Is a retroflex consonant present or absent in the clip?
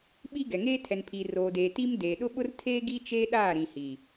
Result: absent